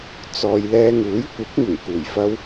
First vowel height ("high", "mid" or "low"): mid